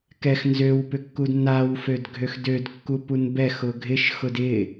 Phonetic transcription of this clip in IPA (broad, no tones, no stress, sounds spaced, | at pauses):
k ɛ x n z ø w p ʏ kː u d n a w f ø d ɡʱ ø x d ø d kː u p u n b ɛ x ʊ ɡʱ ɪ ʃ x ʊ d ɪ